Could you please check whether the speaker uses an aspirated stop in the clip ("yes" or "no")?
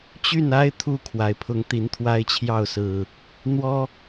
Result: yes